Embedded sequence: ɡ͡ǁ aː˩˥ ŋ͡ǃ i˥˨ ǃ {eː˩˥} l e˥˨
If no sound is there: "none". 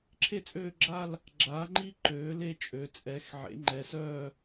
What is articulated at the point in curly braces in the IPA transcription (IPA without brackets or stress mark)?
øː˩˥